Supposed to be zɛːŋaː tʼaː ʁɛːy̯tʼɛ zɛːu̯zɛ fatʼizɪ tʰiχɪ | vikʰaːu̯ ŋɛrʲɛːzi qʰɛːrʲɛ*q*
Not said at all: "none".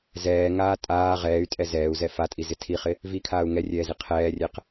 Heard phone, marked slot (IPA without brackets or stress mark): q